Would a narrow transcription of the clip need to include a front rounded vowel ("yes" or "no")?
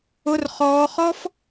no